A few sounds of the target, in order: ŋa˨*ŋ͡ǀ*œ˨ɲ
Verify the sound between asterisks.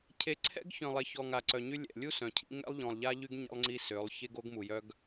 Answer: incorrect: ǀ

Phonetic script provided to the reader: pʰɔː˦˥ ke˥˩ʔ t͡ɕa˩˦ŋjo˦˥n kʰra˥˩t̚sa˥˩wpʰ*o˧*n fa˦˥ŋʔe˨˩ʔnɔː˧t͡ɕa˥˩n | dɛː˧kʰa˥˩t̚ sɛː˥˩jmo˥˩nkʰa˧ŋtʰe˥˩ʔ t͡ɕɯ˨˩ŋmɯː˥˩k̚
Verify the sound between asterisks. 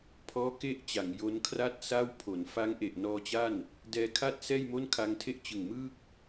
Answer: incorrect: o˩˦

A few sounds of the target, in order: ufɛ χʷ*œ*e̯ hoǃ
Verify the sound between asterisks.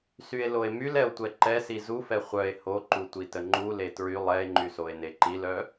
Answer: correct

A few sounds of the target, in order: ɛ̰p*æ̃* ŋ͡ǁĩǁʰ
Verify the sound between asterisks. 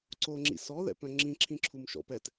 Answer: incorrect: œ̃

